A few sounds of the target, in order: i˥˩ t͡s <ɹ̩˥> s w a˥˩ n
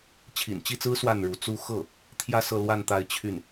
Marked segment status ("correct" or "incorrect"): correct